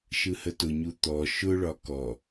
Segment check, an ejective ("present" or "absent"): absent